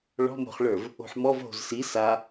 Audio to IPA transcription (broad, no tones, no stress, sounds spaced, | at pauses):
ɭ ɔ̤ m o̤ χ ɭ ə˞ v | o̤ ħ m ɔ v ɦ o̤ z s i s a